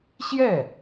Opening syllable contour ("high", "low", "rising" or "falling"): falling